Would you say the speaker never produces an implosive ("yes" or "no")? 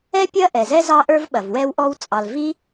no